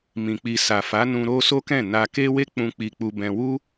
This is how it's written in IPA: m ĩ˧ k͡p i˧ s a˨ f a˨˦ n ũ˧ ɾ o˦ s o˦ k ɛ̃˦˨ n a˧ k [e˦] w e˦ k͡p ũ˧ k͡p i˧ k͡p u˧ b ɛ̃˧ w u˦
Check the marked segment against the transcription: correct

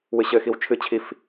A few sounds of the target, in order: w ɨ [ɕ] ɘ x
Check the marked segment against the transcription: correct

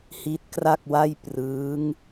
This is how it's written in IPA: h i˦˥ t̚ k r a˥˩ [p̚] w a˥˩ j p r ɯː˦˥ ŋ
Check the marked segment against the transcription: incorrect: k̚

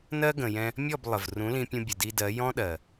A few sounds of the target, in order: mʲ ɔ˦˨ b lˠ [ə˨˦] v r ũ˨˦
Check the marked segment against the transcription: incorrect: ə˨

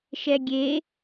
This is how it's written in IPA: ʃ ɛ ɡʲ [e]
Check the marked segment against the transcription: correct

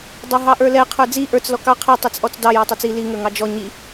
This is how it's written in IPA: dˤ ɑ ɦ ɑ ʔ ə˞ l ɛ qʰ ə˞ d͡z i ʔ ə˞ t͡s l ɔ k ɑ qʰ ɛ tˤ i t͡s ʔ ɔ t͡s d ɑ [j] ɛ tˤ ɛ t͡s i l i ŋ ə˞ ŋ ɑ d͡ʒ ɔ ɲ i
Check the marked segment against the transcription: correct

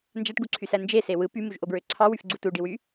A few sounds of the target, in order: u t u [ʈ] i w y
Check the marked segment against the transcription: incorrect: ɖ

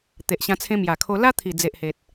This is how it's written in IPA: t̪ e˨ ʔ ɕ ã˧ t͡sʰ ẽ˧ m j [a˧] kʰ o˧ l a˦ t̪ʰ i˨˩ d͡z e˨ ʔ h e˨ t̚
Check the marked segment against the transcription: incorrect: a˨˩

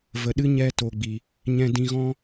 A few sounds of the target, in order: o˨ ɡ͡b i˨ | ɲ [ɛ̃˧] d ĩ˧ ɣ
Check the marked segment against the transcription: correct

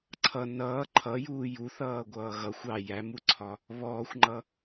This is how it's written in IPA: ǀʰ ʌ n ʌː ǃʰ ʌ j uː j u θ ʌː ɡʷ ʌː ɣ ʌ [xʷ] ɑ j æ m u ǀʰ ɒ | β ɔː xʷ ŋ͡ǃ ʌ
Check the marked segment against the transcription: correct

